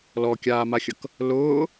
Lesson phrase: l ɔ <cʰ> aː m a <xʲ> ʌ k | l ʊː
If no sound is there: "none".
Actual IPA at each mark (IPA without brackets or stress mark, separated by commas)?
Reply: kʲ, xʲ